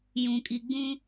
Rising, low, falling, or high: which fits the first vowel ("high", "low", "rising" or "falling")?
low